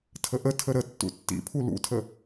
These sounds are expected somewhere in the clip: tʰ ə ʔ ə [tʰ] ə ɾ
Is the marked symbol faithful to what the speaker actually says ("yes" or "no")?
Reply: yes